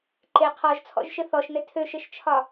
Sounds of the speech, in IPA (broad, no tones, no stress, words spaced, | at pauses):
ǃe qʰɔʒt͡sʰɔ̰ʒʃɘ θɔʃnɘ tʰøʃɘʃt͡ʃʰɒ